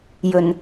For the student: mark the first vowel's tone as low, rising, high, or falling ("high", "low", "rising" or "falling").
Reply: low